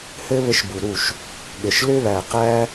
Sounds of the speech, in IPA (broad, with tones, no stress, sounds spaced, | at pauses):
h ɘ˦ β ɘ˧ ʃ b u˨ ɾ u˦˨ ʃ | ɠ ɘ˨ ʃ l ʏ˦ β æ˨ q æ˦